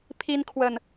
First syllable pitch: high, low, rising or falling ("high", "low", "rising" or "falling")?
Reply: high